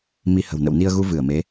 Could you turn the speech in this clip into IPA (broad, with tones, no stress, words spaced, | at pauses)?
mi˧ hə̤˨˩w nə̰˧˨wni˧ə̯ɣu˧ vɨ˧˩ə̯me˨˦